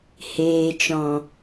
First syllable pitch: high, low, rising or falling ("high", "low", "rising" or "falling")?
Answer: low